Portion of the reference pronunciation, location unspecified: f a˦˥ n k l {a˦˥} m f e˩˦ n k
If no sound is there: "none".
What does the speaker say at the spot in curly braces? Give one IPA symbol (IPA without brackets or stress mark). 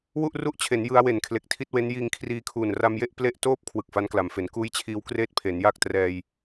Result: a˩˦